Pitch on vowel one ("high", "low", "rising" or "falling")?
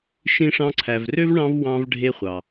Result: high